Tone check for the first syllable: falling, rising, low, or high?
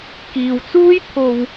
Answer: low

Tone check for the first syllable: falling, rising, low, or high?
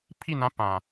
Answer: falling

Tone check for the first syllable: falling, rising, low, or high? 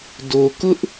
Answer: low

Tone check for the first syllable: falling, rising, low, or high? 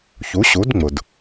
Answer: rising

